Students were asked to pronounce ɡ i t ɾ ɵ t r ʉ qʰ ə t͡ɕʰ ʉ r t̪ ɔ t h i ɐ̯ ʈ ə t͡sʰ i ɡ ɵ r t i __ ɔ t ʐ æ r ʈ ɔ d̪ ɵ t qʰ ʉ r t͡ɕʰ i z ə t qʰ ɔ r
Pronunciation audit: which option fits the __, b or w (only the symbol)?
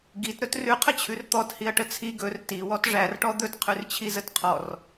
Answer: w